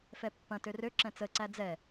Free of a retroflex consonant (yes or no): yes